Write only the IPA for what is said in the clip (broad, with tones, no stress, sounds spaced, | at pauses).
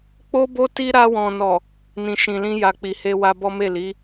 k͡p o˦ b o˦ t i˦ ɾ a˧ w ɔ̃˨ n ɔ˨ | n ĩ˨ ʃ ĩ˨ l ĩ˧ j a˨ k͡p i˨ h e˧ w a˧ b ɔ˦ m e˦˨ l i˨˦